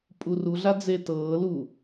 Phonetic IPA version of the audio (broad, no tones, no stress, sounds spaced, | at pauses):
pʼ u r u ɮ a d͡z e t ɤː l u